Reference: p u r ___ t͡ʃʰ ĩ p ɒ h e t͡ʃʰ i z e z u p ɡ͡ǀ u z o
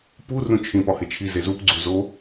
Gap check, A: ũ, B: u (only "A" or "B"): A